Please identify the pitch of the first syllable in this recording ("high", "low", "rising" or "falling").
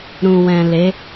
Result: low